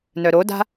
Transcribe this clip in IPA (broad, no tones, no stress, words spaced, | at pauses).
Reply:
nœɾoda̤